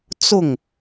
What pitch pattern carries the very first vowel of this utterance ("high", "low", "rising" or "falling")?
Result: falling